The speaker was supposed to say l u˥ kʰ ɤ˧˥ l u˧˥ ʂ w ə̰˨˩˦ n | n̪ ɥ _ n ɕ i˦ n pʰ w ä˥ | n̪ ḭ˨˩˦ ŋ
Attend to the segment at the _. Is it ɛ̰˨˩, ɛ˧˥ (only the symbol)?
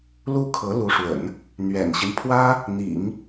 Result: ɛ̰˨˩